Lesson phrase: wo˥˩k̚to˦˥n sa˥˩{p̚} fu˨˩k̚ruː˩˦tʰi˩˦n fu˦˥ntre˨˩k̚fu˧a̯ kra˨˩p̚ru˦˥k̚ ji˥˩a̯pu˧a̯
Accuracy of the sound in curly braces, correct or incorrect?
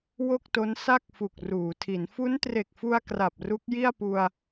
incorrect